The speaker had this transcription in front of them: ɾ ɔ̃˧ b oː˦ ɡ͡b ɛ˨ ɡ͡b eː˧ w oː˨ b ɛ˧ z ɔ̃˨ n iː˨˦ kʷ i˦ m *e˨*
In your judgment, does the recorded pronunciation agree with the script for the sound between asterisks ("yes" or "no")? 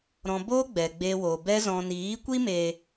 yes